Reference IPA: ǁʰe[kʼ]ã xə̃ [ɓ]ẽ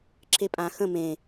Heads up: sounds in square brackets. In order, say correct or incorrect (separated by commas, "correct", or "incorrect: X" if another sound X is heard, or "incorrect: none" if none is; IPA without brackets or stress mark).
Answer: incorrect: pʼ, incorrect: m